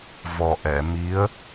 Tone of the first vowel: low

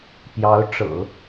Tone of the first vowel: rising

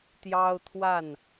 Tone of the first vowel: high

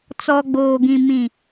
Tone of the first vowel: low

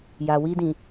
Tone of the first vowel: low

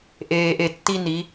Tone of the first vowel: low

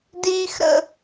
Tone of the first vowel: high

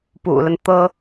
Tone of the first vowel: low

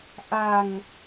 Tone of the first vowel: low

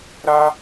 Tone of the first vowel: high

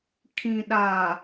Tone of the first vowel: low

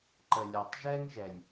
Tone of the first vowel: low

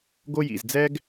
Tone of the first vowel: high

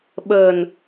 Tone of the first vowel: low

